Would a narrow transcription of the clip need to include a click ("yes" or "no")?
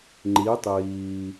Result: yes